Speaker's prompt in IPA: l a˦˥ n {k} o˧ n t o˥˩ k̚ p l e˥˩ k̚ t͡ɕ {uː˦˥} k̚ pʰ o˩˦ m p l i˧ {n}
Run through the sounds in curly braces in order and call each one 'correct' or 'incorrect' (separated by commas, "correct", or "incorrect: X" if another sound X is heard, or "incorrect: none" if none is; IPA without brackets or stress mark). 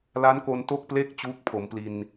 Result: correct, correct, correct